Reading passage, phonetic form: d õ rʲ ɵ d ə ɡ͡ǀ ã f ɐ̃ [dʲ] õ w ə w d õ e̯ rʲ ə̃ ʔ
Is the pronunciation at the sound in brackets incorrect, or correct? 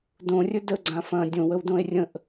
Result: correct